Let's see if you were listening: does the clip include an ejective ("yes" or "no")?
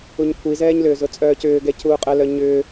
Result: yes